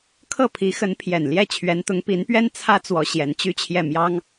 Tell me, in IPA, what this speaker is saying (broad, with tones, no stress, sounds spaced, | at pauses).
kʰ ɤ˥˩ pʰ i˧˥ x ə˧˥ n pʰ j ɛ˨˩ n l j ɛ˥˩ t͡ɕʰ ɥ ɛ˧˥ n t̪ ʊ˧˥ ŋ p i˧˥ n p ɥ ɛ˥ n t͡sʰ ä˥ t͡s w ɔ˧˥ ɕ j ɛ˧˥ n t͡ɕ y˥ t͡ɕʰ j ɛ˥˩ m j ɑ˥ ŋ